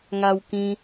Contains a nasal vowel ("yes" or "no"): yes